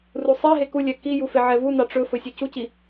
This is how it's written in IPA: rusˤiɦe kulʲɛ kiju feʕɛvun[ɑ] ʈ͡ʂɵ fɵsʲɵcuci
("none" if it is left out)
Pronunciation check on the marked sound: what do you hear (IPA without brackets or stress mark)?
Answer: ɑ